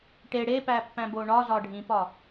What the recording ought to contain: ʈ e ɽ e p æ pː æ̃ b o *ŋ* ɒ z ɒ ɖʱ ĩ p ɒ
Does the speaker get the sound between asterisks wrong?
yes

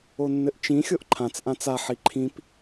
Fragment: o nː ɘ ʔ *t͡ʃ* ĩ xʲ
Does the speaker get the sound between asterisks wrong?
no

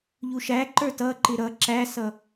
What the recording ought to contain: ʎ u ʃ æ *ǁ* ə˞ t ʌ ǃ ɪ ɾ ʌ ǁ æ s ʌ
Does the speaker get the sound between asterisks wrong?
yes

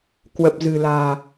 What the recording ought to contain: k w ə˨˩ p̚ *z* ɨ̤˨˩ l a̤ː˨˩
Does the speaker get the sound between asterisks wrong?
no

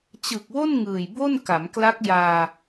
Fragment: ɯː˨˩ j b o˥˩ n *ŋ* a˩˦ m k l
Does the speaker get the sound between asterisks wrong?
yes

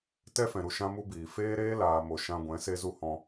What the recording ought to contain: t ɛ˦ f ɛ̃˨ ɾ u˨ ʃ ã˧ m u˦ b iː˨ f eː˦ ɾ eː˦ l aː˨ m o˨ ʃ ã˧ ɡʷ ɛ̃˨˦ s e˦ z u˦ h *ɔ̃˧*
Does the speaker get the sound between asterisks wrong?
no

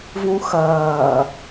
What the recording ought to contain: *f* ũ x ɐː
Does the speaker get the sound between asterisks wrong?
yes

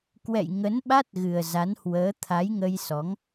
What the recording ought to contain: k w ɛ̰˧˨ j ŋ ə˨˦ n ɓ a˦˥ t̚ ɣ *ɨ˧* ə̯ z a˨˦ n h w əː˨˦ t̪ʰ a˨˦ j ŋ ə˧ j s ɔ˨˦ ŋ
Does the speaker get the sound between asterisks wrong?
yes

